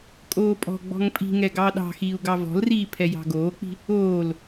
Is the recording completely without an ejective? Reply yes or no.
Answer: no